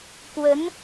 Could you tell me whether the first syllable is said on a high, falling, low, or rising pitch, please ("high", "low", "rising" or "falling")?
rising